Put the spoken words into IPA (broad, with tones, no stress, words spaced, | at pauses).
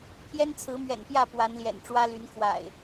pʰjɛ˦nt͡sʰɹ̩˨˦mɥɛ̰˨˩npjä˥˨ pwa˨˦nljɛ̰˨˩n ʈ͡ʂwä˦ly˨˦nkʰwa̰˨˩ɪ̯